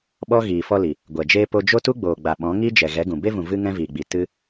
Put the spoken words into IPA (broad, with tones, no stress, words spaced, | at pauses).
ɓɔ˦ɣiː˨ fɔ˧li˨ | ɡʷɛ˨d͡ʒeː˦ po˧d͡ʒo˦tu˦ ɡ͡boː˨ɡ͡ba˨ ɓɔ̃˨˦ ŋi˦d͡ʒɛ˨ ɣɛ˨˦ɡũ˨ be˧vũ˨ vɨ˦ŋɛ̃˦viː˨ɡ͡bi˨ tɨ˦